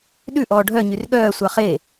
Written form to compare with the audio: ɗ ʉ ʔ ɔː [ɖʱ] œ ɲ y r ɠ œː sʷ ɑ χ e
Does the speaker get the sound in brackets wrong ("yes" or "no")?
no